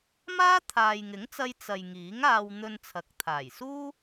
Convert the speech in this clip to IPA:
maː˥t̪ʰaː˨jŋɪ˨˥ŋt͡sɐ˧j t͡sɐ˨j ŋiː˨˥ŋaː˧w n̪ɵ˧nt͡sʰɐ˨˥k̚t̪ʰaː˨˩jsuː˥

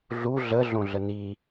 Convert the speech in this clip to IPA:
ɮu ɮə ɮõɮəni

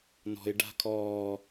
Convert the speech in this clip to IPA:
nɔ̤ɪ̯ ɖa̤kʰɔː

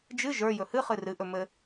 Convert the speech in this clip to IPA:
d͡ʒɨ ʒə˞ jɵhɨχɨ rɨʔɵ mɘ

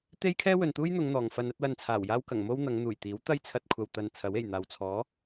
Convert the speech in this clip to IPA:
t̪e˥jkʰɛː˥wɵ˨nt̪uː˥j n̪ʊ˨˧ŋ n̪ɔː˨ŋfɐ˧n ɐ˨˥t̚wɐ˧nt͡sʰaː˨˩wjaː˥w kɐ˨˩ŋmo˥w n̪ɐ˨˧ŋ n̪uː˨˩jt̪iː˨˥w t̪ɐ˥j t͡sʰɐ˧t̚kʷʰɐ˨w t̪ɐ˨n t͡sʰɐ˨˥we˨˩jn̪aː˨w t͡sʰɔː˨˥

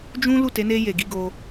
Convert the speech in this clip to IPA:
d͡ʒũ˦ lu˦˨te˨˦ ne˧ je˨ɡi˨˦ ɡo˧

